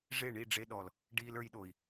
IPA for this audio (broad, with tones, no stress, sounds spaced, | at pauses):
ʐ e˦˨ ɳ i˦˨ ɖ͡ʐ e˧ ɗ ɔ˨ l | ɖ iː˦ l ə˞˧ j ɗ o˨ i̯